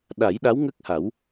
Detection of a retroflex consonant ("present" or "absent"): absent